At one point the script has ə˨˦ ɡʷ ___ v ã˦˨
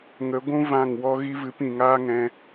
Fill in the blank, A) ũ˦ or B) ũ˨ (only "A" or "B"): A